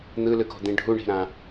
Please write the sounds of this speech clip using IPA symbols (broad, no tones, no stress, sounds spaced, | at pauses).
n̪ ɯ l ɯ k o̤ d̪ ĩ ɖʱ u ɳ i̤ ɾ ã